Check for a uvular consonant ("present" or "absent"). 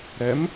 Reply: absent